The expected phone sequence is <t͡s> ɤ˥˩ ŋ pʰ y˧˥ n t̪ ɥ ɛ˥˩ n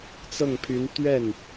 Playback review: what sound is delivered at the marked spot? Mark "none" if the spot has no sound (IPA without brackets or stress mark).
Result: t͡s